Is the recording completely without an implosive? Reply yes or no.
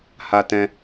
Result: yes